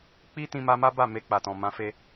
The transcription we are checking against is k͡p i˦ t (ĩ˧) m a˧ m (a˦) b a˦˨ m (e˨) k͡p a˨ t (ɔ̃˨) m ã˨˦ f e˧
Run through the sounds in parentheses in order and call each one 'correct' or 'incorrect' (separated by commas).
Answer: correct, correct, incorrect, correct